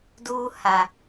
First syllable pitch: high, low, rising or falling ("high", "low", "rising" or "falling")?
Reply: high